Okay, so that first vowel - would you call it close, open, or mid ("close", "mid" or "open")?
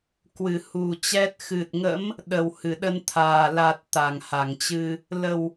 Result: close